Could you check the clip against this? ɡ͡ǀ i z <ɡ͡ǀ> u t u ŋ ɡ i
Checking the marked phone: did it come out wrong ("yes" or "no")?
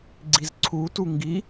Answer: yes